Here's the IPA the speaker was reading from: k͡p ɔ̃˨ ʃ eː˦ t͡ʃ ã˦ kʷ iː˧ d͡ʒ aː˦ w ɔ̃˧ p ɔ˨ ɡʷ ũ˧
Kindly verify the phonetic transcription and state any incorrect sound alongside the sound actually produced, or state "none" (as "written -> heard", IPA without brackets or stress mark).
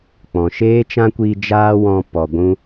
none